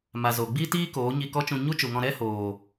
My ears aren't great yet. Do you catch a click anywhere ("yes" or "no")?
no